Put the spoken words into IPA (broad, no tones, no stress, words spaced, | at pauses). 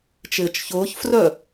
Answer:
t͡ʃɪːt͡ʃçʊːçfrœ